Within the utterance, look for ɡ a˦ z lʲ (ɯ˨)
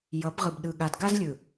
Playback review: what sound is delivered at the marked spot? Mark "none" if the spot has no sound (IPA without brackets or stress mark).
ɯ˨